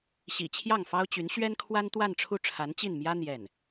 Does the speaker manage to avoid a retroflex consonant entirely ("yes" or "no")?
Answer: no